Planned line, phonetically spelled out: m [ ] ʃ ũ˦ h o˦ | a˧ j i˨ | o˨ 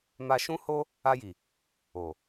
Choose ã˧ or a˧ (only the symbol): a˧